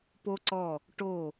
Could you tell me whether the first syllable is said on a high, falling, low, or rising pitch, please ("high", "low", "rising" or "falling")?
high